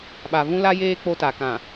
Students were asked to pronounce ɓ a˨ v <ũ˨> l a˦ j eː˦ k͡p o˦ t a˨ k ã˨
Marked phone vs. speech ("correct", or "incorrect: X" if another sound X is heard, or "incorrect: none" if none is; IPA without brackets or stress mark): incorrect: ũ˦